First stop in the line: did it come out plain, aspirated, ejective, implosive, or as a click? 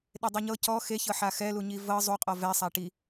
implosive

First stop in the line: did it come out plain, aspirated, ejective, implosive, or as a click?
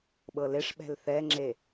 implosive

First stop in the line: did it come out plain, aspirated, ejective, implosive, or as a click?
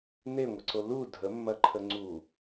click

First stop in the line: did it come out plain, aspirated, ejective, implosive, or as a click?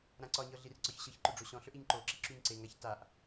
click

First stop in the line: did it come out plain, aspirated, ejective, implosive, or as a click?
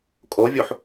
ejective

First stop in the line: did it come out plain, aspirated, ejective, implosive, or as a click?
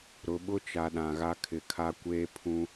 implosive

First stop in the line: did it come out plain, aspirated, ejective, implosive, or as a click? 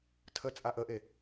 aspirated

